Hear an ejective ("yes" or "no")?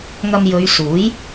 no